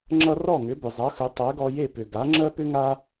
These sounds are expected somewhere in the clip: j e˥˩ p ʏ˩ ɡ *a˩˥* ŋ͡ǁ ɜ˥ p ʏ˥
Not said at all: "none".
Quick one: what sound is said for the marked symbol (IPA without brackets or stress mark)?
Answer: a˩˥